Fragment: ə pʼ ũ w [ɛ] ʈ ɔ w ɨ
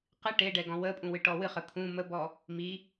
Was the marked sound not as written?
yes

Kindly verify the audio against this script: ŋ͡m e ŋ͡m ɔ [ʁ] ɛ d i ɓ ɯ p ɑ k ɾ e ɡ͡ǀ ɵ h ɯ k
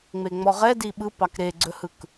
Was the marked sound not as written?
no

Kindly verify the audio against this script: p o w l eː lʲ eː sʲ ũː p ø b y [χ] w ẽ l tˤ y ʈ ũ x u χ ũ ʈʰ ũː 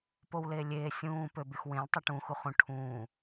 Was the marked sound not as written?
yes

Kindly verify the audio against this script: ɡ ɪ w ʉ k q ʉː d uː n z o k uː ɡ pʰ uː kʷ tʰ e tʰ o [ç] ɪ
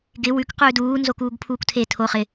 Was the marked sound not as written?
yes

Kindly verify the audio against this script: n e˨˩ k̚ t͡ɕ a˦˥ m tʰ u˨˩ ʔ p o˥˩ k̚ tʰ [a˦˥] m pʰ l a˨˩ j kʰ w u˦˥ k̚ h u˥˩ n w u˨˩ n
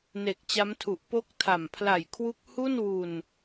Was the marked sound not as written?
yes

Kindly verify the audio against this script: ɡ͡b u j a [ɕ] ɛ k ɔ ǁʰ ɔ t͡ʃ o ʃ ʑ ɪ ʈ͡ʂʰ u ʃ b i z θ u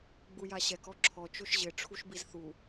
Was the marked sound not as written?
no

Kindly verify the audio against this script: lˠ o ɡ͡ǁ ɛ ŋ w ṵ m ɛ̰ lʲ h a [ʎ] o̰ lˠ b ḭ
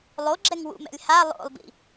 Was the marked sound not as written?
yes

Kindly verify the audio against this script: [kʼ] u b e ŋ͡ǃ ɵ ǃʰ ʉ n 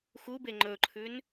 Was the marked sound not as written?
yes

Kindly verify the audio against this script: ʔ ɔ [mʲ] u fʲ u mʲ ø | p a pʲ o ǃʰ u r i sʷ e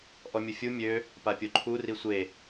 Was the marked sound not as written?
no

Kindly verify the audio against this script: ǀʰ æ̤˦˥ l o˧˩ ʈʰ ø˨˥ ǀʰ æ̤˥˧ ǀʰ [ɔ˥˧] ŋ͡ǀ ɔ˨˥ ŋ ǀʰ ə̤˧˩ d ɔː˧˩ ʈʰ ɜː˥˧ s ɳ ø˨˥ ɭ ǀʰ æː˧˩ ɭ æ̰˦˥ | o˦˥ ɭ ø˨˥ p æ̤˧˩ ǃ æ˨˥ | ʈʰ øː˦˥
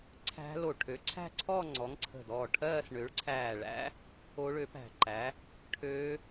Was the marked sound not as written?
no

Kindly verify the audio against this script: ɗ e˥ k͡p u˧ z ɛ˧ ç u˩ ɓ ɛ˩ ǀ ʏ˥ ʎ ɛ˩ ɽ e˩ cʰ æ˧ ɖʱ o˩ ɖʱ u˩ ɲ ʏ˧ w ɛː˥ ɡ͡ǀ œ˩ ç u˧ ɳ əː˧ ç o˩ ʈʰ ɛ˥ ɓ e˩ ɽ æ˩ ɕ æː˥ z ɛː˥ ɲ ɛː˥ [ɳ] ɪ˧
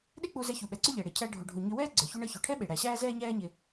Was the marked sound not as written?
yes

